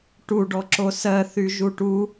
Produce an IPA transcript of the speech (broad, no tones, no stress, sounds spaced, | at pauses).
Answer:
ʈ u ɖ ɔ ǁ o s ɜ θ y ʒ u ʈ u